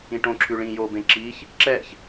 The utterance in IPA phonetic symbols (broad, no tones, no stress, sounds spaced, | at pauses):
ĩ ʈ õ ǁʰ ʉ ɭ ĩ j o b ẽ ǁ i ç | ǁ ɛ ç